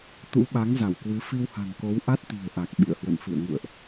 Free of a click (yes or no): yes